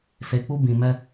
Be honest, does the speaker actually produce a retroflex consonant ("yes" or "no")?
no